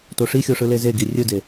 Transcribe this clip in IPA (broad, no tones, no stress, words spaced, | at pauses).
toʂixʲo ʂɯlezeɡi rʲɯde